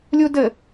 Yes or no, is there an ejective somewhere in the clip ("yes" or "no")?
no